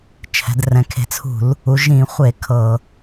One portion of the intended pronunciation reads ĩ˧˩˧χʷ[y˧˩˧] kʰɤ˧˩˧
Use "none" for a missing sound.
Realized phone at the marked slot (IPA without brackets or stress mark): e˧˩˧